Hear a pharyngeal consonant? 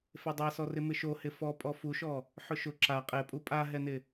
yes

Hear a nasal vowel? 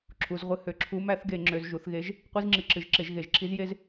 no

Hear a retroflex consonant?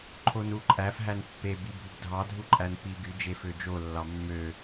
no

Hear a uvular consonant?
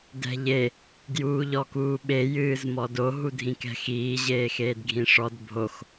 no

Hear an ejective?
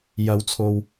no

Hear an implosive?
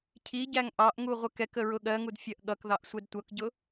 yes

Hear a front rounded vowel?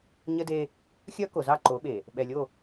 yes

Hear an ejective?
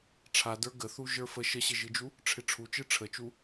no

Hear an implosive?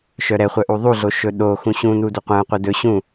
yes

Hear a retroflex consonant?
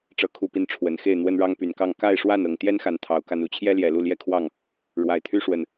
yes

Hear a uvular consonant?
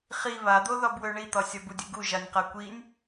yes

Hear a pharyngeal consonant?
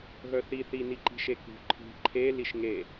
no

